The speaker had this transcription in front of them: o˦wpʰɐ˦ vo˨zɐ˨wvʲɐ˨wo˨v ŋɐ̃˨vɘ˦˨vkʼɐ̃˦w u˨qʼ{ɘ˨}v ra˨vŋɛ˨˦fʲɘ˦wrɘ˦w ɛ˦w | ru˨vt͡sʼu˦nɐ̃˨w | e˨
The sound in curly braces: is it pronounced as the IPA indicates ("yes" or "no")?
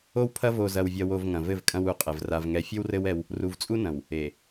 yes